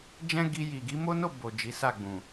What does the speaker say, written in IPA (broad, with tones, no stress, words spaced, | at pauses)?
d͡ʒɛ̃˦ɡi˧ ji˨ɡi˧mo˦no˦˨ bo˨ d͡ʒi˨˦sa˦˨ɡ͡bũ˨